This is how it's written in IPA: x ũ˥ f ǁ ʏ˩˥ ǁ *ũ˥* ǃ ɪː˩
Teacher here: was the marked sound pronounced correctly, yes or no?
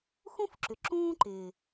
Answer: no